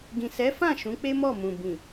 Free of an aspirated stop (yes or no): yes